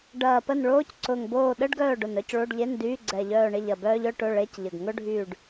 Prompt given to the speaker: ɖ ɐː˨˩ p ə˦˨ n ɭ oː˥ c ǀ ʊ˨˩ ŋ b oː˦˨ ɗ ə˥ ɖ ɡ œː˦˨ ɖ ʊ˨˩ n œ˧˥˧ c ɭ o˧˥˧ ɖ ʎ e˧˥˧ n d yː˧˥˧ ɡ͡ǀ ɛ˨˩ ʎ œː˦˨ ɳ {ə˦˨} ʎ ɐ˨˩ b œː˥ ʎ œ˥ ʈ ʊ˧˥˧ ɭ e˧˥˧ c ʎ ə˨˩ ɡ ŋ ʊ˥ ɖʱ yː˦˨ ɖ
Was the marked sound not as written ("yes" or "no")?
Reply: yes